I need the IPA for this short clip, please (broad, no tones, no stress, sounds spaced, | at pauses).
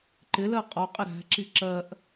ǃ ɪ l ɜ qʼ ɔ qʼ ɪ ɾ æ̤ ǁ i ǁ ɜ ʔ